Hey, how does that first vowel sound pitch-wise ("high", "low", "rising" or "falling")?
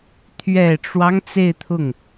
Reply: low